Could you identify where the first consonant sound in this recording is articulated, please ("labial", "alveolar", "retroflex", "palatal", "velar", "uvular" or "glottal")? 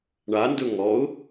retroflex